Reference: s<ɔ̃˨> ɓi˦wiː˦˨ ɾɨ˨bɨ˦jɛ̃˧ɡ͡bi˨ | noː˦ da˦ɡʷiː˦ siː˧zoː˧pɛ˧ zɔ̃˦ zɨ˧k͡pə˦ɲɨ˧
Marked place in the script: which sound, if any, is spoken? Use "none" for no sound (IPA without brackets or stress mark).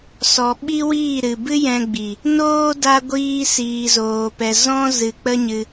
ɔ˨